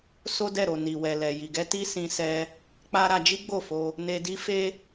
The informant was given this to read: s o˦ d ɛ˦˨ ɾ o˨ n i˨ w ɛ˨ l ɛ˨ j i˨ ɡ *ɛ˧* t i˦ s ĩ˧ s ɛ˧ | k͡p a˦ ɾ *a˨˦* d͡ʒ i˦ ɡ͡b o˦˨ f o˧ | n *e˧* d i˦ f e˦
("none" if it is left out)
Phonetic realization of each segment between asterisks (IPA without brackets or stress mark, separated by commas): ɛ˧, a˧, e˧